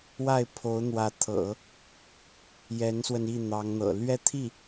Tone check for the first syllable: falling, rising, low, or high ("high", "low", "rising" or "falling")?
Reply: falling